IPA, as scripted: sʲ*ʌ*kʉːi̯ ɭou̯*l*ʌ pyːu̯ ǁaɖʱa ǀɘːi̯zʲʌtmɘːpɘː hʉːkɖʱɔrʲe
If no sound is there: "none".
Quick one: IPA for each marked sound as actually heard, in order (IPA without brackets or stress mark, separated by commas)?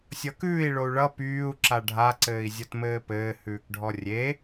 ʌ, ɭ